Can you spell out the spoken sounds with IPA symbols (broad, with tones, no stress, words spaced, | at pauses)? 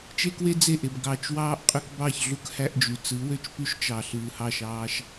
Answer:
t͡ʃe˦kwe˦ d͡ze˦˨ʔe˨b ɡɑ˨t͡ʃwɑː˦ʔ qʼø˦kbɑ˦˨çɮu˦k hæ˦ʔd͡ʒy˨ t͡sɯ˨˦ wø˦t͡ʃpy˦ʃt͡ʃɑ˨ ɬɯː˨hɑ˦˨ʃɑː˦ʃ